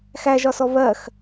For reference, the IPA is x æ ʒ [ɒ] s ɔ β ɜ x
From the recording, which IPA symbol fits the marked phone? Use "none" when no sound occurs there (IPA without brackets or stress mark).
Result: ɒ